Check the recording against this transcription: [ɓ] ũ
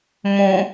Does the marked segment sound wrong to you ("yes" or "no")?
yes